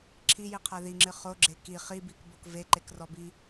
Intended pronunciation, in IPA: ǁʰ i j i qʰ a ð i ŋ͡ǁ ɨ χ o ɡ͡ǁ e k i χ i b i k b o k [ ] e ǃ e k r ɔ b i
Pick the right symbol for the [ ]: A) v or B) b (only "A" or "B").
A